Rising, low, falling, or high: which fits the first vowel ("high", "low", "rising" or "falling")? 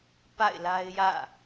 falling